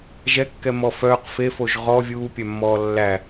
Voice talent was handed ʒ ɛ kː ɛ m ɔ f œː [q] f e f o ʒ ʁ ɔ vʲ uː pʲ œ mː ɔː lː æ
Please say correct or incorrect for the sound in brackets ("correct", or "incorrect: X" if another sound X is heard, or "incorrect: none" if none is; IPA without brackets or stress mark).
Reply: correct